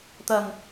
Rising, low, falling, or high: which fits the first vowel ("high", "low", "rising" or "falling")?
low